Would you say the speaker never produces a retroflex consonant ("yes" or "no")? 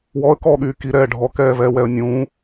no